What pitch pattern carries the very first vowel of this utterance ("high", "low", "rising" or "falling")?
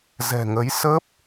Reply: low